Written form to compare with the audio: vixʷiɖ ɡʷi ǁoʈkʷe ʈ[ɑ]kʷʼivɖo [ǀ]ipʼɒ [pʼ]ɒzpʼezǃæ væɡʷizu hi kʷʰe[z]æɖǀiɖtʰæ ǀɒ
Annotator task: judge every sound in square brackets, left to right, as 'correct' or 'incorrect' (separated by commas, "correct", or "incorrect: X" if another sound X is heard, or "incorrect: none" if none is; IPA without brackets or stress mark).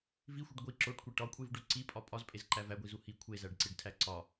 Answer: incorrect: ɒ, correct, correct, correct